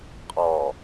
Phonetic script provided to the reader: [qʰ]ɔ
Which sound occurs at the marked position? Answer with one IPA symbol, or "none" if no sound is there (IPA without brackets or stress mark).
qʼ